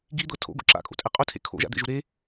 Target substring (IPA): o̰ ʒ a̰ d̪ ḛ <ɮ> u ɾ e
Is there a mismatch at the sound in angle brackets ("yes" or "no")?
yes